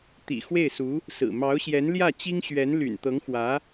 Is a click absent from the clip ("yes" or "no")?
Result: yes